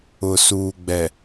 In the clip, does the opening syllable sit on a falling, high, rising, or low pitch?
low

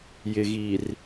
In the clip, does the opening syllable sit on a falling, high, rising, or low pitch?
low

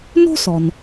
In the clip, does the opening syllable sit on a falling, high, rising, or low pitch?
high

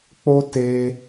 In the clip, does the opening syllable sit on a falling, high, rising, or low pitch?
high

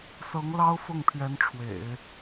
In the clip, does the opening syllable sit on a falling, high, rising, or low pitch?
rising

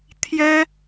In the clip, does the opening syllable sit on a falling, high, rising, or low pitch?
high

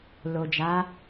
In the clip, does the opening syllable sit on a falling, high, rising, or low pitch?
low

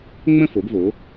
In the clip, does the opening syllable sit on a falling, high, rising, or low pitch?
falling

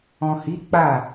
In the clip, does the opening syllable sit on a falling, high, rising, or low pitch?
low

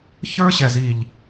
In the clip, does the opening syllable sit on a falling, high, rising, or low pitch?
high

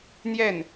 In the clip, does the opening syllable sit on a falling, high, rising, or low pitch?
falling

